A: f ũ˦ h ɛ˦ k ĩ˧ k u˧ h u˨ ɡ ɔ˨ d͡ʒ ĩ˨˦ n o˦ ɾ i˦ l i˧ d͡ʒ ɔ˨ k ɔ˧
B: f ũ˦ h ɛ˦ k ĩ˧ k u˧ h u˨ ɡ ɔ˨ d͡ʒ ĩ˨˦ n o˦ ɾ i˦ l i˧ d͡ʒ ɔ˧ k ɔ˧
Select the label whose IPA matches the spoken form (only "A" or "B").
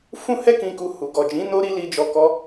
B